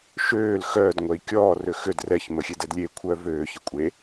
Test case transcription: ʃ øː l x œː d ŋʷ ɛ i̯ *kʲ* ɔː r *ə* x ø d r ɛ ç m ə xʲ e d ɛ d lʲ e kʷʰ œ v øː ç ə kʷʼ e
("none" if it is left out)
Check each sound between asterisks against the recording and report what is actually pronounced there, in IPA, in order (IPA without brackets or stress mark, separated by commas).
kʲ, ø